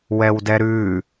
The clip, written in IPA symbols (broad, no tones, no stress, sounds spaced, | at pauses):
w ɛ w d ɛ ɾ ʉ